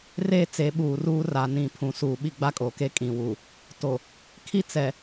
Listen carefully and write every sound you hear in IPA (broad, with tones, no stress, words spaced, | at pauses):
re˦˨ t͡se˨˦ɓuː˨ruː˦ ra˨nĩ˨ pʰũ˨suː˨ɓi˦ ɡ͡ba˦kʼo˨ke˦ kʼĩ˨wu˨ | to˨ | kʰi˦ t͡sɛ˨